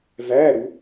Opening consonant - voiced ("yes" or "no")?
yes